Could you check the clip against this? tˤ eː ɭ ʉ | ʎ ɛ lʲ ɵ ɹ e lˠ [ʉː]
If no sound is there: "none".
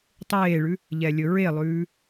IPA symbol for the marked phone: ʉː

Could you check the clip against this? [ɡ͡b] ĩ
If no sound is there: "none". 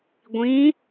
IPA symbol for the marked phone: ɡʷ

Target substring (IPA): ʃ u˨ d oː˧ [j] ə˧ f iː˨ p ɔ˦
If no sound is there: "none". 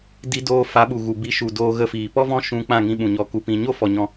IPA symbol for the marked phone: ɣ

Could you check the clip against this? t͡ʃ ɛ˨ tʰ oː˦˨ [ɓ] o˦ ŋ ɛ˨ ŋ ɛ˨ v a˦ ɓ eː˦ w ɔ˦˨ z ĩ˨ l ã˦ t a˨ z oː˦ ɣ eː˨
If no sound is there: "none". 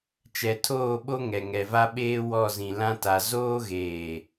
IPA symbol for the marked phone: ɓ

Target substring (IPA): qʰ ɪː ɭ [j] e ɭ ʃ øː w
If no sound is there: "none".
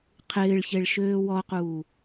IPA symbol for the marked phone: ç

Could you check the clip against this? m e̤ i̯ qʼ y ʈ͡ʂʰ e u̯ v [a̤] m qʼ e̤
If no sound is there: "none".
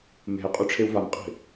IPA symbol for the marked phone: a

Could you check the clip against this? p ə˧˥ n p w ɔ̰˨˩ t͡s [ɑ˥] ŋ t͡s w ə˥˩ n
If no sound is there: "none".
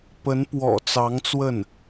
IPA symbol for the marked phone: ɑ˧˥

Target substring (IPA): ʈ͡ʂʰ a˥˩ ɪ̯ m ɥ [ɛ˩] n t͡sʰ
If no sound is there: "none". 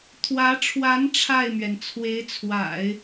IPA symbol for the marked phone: ɛ˩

